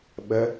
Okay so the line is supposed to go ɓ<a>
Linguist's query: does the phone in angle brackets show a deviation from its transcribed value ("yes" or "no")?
yes